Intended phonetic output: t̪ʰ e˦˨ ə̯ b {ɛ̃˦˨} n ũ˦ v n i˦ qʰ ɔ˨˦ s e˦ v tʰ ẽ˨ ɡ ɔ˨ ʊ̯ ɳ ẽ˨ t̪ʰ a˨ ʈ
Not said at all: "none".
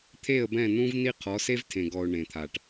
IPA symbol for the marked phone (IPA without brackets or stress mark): ɛ̃˦˨